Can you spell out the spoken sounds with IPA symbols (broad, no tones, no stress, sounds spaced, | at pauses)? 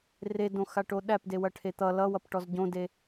r e d õ x a ʈ o ɗ æ p d e w ɐ ʈʰ e t̪ ʌ l ʌ w ʌ p ʈ ɔ z ɟ õ d e